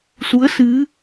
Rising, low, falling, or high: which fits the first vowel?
rising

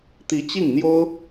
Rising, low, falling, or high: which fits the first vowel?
rising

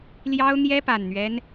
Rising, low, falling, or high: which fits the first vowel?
high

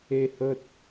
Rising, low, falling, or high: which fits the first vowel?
low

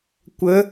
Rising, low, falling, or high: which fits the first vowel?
rising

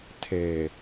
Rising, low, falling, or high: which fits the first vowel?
low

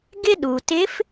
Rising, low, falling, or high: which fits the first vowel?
high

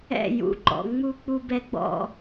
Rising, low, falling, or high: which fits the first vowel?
falling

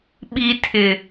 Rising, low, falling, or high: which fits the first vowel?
low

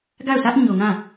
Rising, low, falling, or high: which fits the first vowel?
falling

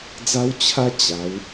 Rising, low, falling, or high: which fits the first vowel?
high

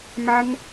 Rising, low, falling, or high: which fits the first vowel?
high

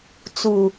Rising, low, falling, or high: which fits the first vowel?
low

